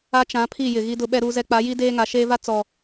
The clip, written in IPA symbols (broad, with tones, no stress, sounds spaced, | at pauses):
a˦ t͡ʃ ã˨˦ pʰ i˦˨ j ɪ˨ ɣ i˦ d ʊ˦ ɓ ɛ˦ ɾ uː˦ z ɛ˦ k͡p a˨˦ j i˦ d eː˦ ŋ a˨˦ ʃ eː˦ v a˦ t͡s ɔ˨